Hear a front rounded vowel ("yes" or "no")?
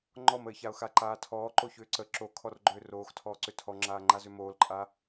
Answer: yes